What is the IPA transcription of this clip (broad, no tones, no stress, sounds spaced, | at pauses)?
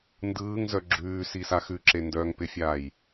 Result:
n d ɯː ŋ z œ ɡ͡ǁ ʉː s i s a x ʉ ǁ e n d œː ŋ p ɪ fʲ aː j